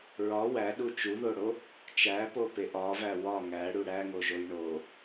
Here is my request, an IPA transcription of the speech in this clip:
ɹɒ wæɗu t͡ʃuðoɽo | t͡ʃæpopeʔ ɒvæ wɒ ŋæɽu ɽæŋoʒoj ɳo

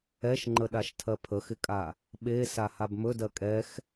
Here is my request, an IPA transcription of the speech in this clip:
ɛʃŋ͡ǃəɗaʃ tʰɜpʰəxɪkʼa | ɓe sahabmɵ dɜkʼɛx

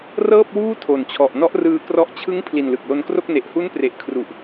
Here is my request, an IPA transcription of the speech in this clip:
rɤː˥˩p̚wuː˥˩ tʰo˨˩nt͡ɕʰɔ˨˩ʔ nɔ˦˥ʔrɯː˧krɔ˦˥ʔ t͡ɕʰɯ˦˥ŋ pʰli˨˩nlɯ˨˩k̚lo˧nkro˥˩k̚ ne˨˩ʔhu˦˥n pre˨˩ʔ kʰru˨˩ʔ

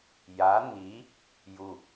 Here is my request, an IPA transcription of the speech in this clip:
ja n̪i | ju

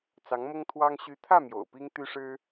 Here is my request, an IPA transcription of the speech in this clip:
t͡sɑ˧˥ŋmʊ˥ŋt̪ʰwɑ˥ŋ ɕy˧˥t̪ʰä˥˩ mjo̰˨˩ʊ̯pi˥ŋt̪y˥ ʂɻ̩˥

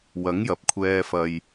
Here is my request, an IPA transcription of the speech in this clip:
wɐ˨˥ŋ jɐ˨p̚kʷʰɛː˧ fɐ˨j

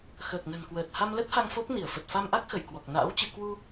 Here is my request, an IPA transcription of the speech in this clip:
xəː˨˩k̚nə̤˨˩nkwəː˨˩t̚ ha˧mlə˦˥t̚ha˧ŋ fo˦˥p̚ ni˧˩ə̯fə˨˩t̚ fa˧mʔa˦˥k̚xə˧˩j kwɔ˨˩k̚na̰ː˧˥wt͡ɕɨ˧ kwu˧

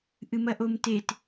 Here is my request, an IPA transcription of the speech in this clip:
ʔɨmɐʔomtet

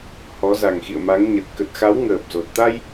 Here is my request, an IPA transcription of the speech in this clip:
hɔ˨˦za˨˩ŋxḭ˧˨ə̯ma˨˦ŋ ɲə˨˩t̚ kə˨˩t̚xa˨˦w ŋəː˨˩p̚zo˨˩t̚ t̪a˧j

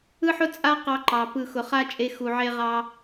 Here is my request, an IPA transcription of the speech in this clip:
ɯ˦ħʊ˦ t͡sʼa˦qɑ˧ǃɑ˨ pɯ˦˨xʊ˧ χa˦ t͡ʃʼe˧xu˨ ʕe˦ʁɑ˦

